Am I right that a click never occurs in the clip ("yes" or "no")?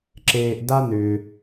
no